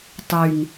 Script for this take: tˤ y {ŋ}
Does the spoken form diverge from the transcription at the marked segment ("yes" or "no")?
no